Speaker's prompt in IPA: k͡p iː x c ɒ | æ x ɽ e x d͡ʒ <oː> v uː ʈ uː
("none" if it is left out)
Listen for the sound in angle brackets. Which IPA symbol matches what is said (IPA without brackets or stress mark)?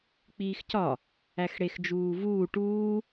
uː